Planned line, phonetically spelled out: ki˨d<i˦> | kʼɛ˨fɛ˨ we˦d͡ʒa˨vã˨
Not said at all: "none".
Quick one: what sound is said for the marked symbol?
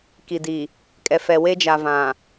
i˨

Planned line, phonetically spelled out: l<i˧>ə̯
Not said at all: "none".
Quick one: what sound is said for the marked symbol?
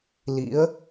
ḭ˧˥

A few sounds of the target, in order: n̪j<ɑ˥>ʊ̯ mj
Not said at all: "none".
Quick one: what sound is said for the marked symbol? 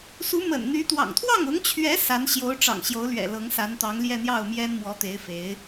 ɑ˥˩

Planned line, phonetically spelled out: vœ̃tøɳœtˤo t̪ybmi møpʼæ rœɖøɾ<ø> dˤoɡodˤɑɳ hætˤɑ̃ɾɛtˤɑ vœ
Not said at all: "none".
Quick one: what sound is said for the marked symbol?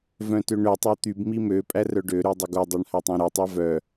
ø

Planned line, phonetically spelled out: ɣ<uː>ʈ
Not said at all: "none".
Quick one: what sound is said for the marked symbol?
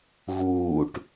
uː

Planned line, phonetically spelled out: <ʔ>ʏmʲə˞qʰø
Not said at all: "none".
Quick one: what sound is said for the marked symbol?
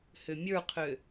h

